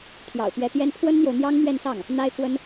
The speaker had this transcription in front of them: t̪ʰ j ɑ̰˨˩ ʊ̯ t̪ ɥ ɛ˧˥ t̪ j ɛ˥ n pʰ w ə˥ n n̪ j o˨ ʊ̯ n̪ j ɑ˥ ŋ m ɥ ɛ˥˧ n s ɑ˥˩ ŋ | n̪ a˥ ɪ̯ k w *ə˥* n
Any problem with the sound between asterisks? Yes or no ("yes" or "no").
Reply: no